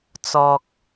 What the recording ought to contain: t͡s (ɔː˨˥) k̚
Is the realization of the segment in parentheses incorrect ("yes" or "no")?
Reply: yes